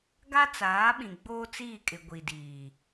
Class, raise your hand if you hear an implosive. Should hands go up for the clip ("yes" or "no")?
yes